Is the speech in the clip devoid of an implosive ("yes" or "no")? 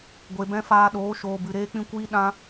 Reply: no